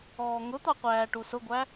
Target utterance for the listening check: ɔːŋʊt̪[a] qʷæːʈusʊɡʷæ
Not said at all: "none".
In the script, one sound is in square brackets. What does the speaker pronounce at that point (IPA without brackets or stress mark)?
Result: ɑ